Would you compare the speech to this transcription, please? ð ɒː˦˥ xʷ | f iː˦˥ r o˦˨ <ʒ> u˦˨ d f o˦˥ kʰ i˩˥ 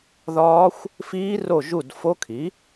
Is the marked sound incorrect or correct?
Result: correct